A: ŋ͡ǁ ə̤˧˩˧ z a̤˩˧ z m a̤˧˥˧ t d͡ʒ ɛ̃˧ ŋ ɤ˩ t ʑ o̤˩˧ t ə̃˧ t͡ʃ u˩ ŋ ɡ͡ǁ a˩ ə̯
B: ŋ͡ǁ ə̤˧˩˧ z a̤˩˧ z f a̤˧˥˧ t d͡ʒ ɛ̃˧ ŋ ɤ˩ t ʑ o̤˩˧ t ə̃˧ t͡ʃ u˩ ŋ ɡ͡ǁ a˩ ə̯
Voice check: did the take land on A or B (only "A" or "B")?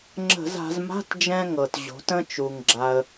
A